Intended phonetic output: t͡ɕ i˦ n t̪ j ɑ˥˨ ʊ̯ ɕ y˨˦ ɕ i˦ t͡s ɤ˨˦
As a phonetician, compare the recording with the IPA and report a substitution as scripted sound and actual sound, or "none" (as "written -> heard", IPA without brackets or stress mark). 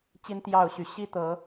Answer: t͡s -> t̪